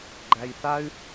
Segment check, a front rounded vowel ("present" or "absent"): present